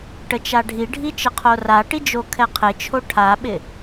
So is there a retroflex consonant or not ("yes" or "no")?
yes